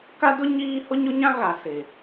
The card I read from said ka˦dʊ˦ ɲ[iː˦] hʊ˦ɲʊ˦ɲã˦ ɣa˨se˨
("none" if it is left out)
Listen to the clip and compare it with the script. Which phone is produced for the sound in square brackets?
iː˦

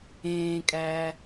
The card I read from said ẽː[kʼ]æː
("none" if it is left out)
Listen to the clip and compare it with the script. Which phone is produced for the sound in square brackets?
kʼ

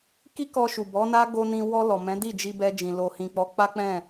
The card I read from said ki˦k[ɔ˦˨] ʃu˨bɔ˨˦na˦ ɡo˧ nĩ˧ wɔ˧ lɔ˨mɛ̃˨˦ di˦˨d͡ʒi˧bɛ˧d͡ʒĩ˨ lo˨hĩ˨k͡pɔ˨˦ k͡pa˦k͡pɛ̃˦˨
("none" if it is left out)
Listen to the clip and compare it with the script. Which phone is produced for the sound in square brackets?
ɔ˧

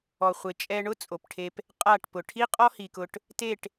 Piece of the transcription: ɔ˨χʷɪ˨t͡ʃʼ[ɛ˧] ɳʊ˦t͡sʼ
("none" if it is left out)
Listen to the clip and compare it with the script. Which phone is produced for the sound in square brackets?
ɛ˧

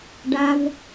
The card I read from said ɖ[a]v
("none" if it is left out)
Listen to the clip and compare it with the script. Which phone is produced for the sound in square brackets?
a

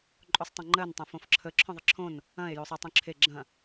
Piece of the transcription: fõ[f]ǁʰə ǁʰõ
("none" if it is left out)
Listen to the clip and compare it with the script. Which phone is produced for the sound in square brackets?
f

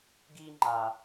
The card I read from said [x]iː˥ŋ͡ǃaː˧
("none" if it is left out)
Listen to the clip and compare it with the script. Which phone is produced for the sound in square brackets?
ɡ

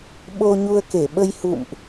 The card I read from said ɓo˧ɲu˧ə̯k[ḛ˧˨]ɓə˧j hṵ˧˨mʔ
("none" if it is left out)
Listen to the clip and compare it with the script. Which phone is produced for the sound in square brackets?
e˧˩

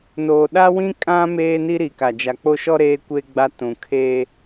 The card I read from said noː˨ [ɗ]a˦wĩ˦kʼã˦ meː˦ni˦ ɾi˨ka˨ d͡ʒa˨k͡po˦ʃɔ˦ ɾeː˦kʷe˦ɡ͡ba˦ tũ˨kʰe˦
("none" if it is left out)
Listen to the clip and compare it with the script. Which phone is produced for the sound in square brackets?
ɗ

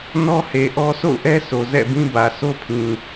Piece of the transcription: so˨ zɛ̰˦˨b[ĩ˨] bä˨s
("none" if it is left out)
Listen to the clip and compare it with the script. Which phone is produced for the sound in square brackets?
ĩ˦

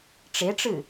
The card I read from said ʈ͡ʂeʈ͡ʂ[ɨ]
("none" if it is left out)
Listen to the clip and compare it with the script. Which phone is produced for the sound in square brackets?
ɨ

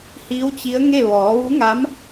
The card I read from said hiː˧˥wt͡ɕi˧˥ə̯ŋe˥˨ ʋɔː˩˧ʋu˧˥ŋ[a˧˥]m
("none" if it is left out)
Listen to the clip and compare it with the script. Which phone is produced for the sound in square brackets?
a˧˥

